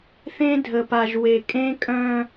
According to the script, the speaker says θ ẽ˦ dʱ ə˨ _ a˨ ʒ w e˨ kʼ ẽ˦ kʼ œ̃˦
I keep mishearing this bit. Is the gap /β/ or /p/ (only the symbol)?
p